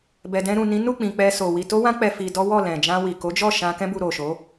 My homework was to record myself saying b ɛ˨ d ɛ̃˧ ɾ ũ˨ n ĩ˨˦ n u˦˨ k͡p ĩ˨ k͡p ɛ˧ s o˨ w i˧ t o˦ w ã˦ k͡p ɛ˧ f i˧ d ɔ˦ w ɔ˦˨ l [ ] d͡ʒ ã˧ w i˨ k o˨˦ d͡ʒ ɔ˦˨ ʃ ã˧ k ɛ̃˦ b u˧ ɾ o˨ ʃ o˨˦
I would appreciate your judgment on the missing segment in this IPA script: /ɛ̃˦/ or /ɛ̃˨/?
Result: ɛ̃˨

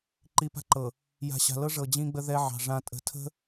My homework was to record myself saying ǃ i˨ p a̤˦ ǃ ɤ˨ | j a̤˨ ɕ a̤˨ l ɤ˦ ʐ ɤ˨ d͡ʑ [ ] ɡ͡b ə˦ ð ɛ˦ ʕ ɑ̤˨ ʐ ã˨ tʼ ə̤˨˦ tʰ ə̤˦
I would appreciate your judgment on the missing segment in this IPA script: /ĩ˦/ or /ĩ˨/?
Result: ĩ˦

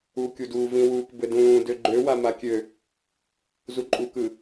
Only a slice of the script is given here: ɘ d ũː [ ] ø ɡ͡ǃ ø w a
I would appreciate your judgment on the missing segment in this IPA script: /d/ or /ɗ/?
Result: d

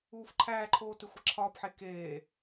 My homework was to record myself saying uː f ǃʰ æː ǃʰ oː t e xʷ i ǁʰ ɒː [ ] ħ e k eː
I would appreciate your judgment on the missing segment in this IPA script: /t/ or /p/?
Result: p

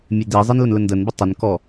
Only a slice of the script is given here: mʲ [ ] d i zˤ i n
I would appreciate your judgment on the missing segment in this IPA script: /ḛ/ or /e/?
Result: e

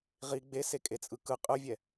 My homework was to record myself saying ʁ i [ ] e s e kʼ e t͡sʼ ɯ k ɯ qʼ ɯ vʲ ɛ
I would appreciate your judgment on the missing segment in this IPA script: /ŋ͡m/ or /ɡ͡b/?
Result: ɡ͡b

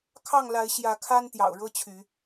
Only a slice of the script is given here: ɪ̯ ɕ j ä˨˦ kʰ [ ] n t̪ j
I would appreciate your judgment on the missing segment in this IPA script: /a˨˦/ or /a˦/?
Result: a˦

